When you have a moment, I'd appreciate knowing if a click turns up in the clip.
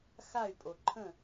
yes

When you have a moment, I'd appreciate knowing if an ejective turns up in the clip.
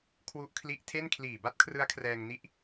no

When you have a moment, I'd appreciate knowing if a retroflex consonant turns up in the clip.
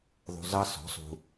no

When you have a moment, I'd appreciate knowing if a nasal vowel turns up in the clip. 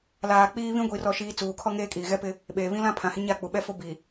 yes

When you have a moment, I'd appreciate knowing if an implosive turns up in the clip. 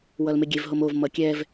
no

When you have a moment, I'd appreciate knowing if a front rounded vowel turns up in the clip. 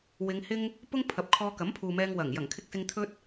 no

